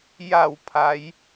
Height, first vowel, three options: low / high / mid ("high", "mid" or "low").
low